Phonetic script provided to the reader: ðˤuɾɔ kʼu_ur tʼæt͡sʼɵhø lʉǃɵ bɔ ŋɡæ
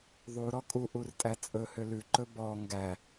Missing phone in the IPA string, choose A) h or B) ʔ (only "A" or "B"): B